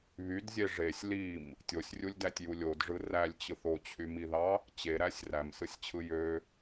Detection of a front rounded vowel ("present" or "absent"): present